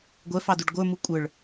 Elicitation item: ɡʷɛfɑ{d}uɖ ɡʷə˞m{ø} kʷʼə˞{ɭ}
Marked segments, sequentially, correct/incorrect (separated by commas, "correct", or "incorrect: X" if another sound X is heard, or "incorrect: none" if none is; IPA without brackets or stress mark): correct, incorrect: u, correct